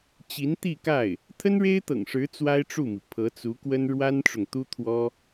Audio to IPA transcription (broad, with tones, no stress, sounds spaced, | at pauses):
t͡ɕ i˧˥ n t̪ i˥˧ k a˥˩ ɪ̯ | t̪ʰ ə˥ n ɻ e˥ ɪ̯ t̪ ɤ̰˨˩ ŋ ʂ ɻ̩˧˥ t͡s w a˥ ɪ̯ ʈ͡ʂ u˥˩ m i˩ pʰ ɤ˧˥ t͡s u˧˥ k w ə˥ n ɻ w a˥ n ʈ͡ʂ ʊ˨ ŋ t̪ u˥ t̪ʰ w ɔ˥